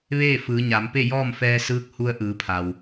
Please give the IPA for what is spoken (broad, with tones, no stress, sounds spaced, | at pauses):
ʋ eː˥˨ f ɯː˩˧ ɲ a˩˧ m p e˥˨ j ɔː˥˨ m f ɛː˧ s ɯː˧˥ k̚ h u˧ ə̯ ʔ ɯː˩˧ pʰ a˩ w